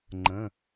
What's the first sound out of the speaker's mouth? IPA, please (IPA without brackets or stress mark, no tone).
ŋ͡ǃ